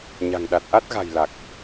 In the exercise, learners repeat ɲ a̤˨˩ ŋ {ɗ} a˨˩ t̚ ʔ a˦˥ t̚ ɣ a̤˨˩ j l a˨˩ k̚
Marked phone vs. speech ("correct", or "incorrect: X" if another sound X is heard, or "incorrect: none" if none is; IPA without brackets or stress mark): correct